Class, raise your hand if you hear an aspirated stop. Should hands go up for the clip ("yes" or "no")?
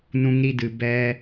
no